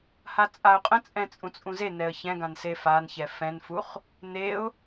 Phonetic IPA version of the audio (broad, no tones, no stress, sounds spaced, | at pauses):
h a t͡sʼ a ʊ̯ qʼ ə̃ t͡sʼ ɛ̃ t͡sʼ ũ t͡sʼ ũ z e n ɛ ə̯ ç ɛ̃ ɡ ã n s e f a n ç ɛ f ɛ̃ n f u χ | n e ʊ̯